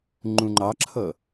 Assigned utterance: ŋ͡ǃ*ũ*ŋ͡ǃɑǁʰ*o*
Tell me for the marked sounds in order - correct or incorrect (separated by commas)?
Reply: correct, incorrect